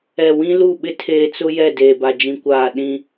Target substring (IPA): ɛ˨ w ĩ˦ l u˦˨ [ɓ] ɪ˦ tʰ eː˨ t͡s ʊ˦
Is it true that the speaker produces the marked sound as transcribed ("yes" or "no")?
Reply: yes